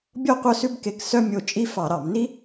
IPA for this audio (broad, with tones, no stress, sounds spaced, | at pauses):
bʲ ɔ˥ qʷ œ˥ s ʉ˥ b k e˦˨ k s œ˥ mʲ o˦˨ t͡ʃʼ i˥ f ɑ˧˩˧ ɾ ɑ˧˩˧ m n i˥